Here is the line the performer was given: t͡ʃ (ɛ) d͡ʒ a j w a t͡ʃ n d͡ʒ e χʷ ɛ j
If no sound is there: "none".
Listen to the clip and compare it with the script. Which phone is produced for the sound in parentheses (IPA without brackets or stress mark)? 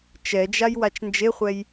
ɛ